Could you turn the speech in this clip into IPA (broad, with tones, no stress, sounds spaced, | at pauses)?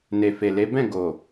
n e˨ f e˨ l e˨˦ b ɛ̃˦˨ ɡ o˨